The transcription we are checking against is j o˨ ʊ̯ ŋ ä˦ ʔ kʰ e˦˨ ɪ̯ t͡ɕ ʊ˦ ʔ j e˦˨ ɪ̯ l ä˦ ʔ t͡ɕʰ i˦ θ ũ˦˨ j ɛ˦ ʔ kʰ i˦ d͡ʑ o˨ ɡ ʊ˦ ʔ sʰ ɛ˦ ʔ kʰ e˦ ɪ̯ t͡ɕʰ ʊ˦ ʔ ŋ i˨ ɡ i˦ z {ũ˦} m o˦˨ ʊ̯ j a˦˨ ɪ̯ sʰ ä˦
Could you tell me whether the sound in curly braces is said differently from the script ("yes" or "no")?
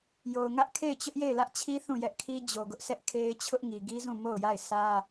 yes